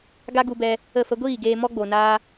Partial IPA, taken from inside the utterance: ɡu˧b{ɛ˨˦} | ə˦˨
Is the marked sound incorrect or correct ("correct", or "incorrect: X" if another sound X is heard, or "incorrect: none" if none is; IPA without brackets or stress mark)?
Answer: incorrect: ɛ˧